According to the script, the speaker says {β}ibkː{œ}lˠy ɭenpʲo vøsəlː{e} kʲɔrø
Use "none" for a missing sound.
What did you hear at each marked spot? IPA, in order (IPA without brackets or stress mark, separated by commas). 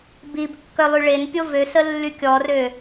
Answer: b, œ, y